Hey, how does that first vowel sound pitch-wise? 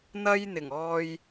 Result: high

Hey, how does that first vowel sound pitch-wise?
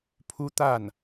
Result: high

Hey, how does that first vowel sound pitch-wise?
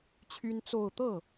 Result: high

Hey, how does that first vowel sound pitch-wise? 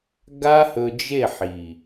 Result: high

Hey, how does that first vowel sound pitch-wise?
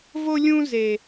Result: high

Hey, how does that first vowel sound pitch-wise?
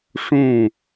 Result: falling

